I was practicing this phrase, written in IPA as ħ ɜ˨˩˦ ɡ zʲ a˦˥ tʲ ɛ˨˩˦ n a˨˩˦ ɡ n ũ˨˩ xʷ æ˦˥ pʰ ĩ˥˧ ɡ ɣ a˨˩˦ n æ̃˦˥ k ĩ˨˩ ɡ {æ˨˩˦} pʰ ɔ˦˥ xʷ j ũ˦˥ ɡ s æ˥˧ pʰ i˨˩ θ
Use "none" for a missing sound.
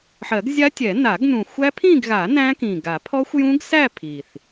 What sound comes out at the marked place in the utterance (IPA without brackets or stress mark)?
a˨˩˦